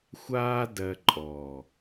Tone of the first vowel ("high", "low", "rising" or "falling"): high